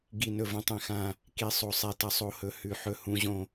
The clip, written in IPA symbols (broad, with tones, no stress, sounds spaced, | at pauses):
ɡ i˨˩ n ɵ˨˩ v õ˨˩ tˤ ẽ˨˩ x ã˨˩ | k i˩˧ sˤ o˨˩ sˤ e˨˩ t ɐ˩˧ sˤ o˩˧ h ɵ˩˧ h ʉ˨˩ ħ ɵ˨˩ h ũ˩˧ ʑ õ˨˩